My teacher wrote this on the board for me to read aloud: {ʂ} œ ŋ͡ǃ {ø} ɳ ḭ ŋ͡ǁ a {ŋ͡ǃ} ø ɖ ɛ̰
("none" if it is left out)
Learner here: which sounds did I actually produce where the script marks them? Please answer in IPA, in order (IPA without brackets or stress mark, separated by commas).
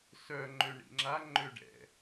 s, ø, ŋ͡ǃ